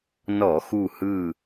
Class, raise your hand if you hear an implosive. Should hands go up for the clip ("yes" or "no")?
no